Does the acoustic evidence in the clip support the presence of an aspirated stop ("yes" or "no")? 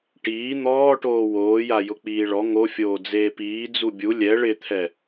yes